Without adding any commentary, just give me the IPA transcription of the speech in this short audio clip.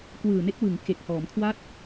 k w ɯː˨˩ n e˦˥ k̚ w ɯ˩˦ ŋ k e˨˩ k̚ h ɔː˩˦ m kʰ w a˥˩ t̚

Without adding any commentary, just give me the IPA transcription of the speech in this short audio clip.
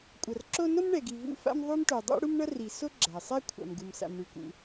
kʷʼ ʌ˩ r ǁ o˥ n o˥ m ɳ ɛ˩ ɡ i˩ v ṵ˥ f a̰˥ m ðˤ u˥ m ʈ o˩ dˤ ṵ˥ ɽ u˥ m ɳ ʌ˥ r i˩ s o˥ ɡ͡ǁ a˩ sˤ ɛ˥ kʷʰ a̰˩ m ɡ u˩ m s a̰˩ m ɳ ʉ˩ k ṵ˩

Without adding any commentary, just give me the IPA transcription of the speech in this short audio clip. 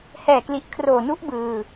h ɛː˨˩ k l i˨˩ ʔ kʰ r oː˨˩ n u˦˥ ʔ b ɯː˨˩

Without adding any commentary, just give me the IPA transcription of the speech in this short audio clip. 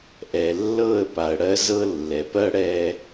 ʔ ɛ˨ lː ɤ˦˨ ə̯ p a˨ ə̯ ɽ ɜ˦ z ɤ˦ lː ɛ˨ p ɜ˦ ɽ ɛ˦

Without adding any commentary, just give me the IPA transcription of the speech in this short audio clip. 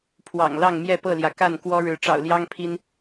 pʰ w ɑ̰˨˩ ŋ l ɑ˥˨ ŋ m j ɛ˥˨ p ɤ˥˨ l j ä˩ k a˥˨ n k w ɔ˦ ɻ ɻ̩˨˦ ʈ͡ʂ ɑ̰˨˩ ʊ̯ l j ɑ˦ ŋ pʰ i˦ n

